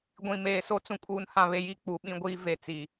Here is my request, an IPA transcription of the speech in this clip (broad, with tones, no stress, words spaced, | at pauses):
ɡʷĩ˨meː˨so˦ t͡sũ˨kʼuː˨nhã˨βe˨ ji˦˨k͡pu˨ ɓĩ˦ɡʷiː˦ve˨t͡si˨